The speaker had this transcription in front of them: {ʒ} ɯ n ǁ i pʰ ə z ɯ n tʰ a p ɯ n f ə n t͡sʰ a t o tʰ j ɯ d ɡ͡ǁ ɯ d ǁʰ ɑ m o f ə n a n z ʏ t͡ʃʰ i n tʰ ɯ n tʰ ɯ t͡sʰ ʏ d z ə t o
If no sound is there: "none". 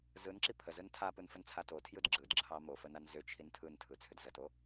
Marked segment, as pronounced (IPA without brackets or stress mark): z